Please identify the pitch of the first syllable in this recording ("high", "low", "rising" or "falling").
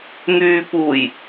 low